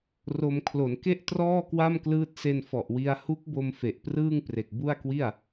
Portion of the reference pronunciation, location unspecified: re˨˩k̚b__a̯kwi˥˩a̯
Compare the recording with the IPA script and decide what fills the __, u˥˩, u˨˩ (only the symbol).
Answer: u˥˩